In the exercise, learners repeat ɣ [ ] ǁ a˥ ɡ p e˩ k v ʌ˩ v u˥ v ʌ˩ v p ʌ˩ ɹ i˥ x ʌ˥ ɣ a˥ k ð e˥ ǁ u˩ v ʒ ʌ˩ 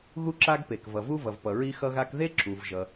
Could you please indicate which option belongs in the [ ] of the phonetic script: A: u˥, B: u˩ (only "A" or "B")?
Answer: A